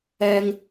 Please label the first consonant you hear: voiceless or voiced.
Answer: voiced